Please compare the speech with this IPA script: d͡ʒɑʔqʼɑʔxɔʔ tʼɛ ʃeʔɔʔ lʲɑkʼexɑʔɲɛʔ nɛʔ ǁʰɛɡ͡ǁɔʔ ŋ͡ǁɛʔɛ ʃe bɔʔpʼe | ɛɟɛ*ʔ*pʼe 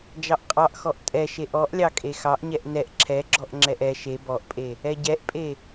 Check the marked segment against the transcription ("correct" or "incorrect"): correct